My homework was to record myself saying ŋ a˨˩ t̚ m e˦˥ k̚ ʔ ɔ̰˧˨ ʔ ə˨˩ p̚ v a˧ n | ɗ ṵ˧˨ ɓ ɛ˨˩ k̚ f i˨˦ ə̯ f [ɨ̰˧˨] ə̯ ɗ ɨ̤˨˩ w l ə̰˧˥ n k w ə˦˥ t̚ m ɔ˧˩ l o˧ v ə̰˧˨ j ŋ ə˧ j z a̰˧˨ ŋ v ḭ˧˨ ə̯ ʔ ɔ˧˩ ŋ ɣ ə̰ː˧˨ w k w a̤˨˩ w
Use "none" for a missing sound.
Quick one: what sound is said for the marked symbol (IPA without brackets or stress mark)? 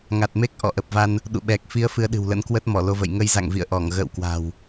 ɨ˨˦